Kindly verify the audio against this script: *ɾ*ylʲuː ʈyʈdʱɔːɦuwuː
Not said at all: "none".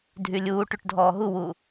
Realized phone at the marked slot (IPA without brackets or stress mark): dʱ